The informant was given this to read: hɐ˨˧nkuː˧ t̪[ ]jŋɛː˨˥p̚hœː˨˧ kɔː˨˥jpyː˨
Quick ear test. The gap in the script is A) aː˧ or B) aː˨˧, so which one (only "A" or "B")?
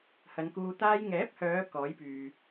A